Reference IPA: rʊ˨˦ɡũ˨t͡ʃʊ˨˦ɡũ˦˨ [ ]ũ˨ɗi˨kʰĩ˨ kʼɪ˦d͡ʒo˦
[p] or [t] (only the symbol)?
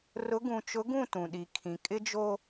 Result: t